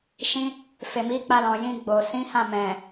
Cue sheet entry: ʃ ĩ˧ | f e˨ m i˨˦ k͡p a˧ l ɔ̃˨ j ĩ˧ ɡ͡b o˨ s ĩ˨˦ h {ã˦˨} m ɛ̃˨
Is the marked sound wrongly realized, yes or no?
no